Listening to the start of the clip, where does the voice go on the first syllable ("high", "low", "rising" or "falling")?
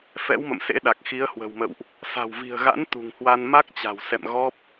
rising